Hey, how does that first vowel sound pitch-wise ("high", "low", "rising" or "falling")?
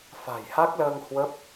low